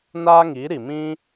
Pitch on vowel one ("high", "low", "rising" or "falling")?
high